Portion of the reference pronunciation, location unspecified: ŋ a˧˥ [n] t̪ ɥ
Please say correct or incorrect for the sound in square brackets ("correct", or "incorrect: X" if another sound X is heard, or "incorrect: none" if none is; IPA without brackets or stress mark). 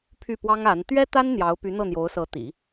correct